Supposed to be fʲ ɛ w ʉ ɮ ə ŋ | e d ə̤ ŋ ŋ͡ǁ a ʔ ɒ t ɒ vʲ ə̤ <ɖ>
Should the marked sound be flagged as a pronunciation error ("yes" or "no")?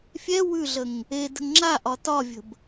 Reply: yes